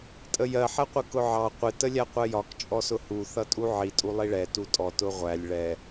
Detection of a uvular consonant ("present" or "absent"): present